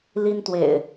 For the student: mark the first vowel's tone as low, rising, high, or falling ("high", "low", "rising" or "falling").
high